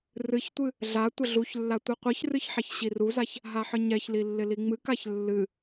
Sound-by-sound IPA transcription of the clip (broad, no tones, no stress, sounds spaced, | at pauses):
r ɨ ç tʷ ɨ | ɮ a tʷ ə ɮ u ç lː a tʷ ɨ qʷ ɨ ç r ɨ ç ħ a ç ɕ i r u z a ç | ɦ a ħ ɨ ɲ ɛ ç l i lː ɪ l i ŋ͡m ɨ k a ç lː ɨ